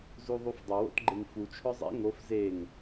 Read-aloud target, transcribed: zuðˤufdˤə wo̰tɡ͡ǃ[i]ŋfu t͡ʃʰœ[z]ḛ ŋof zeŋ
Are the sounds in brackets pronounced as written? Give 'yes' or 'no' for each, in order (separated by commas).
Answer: no, no